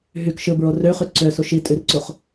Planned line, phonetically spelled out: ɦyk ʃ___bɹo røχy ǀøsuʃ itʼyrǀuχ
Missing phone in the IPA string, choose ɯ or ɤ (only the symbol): ɯ